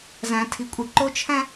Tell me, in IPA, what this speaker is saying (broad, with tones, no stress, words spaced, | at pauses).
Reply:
zæ̃˦tʰi˦kʷʼe˦ ǃo˦t͡ʃʰæ̃˦